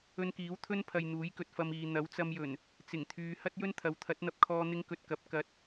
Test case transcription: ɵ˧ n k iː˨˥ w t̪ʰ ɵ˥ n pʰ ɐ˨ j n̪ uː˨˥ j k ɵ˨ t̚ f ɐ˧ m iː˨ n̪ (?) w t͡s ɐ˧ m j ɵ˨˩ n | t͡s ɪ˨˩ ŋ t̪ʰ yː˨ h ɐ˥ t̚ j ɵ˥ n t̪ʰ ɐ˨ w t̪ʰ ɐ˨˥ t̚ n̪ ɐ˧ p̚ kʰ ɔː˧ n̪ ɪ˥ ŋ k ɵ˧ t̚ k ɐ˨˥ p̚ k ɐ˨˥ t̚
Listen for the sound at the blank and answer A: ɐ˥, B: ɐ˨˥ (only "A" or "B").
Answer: B